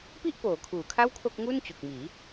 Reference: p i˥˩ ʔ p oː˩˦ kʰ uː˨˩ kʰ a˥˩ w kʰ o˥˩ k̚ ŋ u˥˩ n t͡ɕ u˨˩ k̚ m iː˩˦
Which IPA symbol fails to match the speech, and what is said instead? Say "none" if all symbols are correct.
none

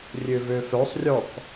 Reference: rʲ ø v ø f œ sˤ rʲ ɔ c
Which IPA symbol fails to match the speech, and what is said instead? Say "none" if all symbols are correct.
c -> k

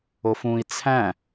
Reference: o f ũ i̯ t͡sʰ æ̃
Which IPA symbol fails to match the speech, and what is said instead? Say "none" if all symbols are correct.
none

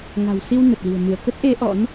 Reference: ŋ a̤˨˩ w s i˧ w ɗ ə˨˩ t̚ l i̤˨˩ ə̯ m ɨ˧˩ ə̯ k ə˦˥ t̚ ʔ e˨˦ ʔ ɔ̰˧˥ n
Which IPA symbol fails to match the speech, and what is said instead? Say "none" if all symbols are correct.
ɗ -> n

